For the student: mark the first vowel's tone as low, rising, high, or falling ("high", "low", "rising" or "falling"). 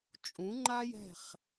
rising